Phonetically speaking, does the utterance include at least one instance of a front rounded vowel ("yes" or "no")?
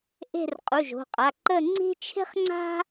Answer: no